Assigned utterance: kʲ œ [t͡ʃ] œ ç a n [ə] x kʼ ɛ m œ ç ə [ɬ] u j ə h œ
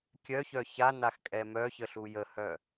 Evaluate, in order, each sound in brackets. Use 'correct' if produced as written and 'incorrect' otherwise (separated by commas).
incorrect, incorrect, correct